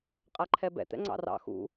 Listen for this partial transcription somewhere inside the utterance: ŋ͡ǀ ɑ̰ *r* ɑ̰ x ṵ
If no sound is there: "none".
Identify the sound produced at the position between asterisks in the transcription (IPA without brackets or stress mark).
r